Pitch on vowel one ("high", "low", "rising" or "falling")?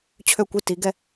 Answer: falling